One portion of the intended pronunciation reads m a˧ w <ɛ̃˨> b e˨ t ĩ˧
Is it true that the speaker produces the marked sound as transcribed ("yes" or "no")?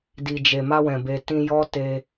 yes